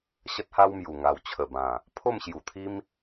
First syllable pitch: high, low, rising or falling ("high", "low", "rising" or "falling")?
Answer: high